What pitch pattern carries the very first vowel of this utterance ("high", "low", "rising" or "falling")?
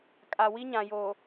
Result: low